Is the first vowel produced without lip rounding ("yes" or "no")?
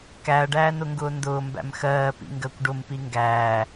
yes